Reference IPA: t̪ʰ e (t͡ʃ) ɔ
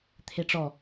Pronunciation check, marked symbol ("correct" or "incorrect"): incorrect